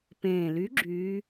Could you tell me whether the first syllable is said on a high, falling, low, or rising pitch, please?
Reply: low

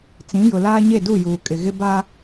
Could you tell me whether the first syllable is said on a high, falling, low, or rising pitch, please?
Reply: rising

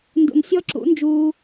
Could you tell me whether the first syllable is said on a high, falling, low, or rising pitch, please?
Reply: low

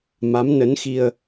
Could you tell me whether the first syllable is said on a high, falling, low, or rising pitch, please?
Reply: rising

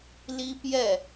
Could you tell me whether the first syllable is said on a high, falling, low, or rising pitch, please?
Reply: high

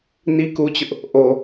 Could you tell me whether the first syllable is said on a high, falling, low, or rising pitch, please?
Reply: high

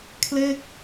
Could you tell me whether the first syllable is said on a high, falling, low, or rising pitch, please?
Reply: falling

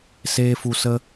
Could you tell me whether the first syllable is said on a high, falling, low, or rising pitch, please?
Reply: high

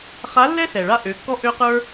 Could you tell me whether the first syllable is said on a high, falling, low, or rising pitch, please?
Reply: rising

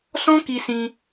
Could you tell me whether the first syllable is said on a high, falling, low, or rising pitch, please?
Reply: high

